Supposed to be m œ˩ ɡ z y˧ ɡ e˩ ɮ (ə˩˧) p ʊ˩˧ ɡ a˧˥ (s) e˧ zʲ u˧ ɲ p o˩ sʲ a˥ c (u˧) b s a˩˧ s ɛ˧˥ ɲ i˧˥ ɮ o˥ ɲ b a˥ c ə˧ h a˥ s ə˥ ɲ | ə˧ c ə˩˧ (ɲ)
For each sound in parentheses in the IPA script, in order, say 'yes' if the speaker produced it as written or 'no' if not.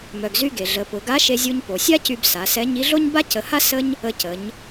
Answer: yes, no, no, yes

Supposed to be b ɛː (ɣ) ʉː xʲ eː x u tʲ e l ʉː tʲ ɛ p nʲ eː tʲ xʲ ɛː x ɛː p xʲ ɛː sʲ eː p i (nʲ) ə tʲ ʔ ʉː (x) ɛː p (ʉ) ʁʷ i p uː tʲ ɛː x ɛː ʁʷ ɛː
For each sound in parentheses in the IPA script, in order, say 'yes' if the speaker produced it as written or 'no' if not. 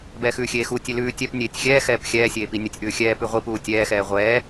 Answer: no, yes, no, yes

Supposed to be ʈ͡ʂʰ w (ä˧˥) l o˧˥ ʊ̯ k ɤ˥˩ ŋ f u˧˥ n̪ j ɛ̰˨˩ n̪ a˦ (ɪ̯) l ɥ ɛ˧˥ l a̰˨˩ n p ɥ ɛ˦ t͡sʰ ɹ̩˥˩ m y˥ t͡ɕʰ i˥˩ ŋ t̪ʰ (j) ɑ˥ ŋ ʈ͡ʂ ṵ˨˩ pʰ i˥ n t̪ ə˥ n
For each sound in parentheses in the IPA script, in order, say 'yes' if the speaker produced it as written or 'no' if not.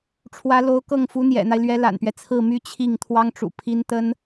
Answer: yes, yes, no

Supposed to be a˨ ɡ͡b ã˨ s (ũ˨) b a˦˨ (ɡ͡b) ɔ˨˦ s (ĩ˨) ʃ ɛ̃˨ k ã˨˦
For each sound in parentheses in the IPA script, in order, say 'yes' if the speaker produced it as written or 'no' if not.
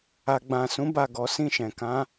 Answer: no, no, no

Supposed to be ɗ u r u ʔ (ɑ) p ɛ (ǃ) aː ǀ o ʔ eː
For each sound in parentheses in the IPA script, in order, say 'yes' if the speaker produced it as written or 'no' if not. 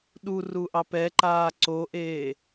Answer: yes, yes

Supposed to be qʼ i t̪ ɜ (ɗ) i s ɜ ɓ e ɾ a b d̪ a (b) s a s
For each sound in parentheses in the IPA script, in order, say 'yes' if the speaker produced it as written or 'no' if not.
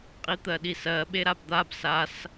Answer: yes, yes

